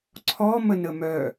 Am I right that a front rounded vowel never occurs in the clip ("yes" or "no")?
no